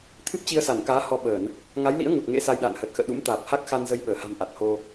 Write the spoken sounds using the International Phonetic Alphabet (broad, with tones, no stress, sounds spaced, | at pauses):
t̪ʰ ɨ˦˥ p̚ t͡ɕ i˧ ə̯ s a˧˩ n k aː˨˦ h ɔ˧ ɓ əː˧˩˨ n | ŋ a˨˦ j l ḭ˧˥ ə̯ ŋ u˨˩ t̚ ŋ ḛ˧˥ s a˧ j ɗ a̰ː˧˨ n h əː˨˩ t̚ x ə̰ː˧˨ ɗ ṵ˧˥ m t̪ aː˨˩ p̚ h a˦˥ k̚ x a˧ n z ə˧ j ɓ əː˧˩ h a̤˨˩ m ʔ a˨˩ t̚ h o˧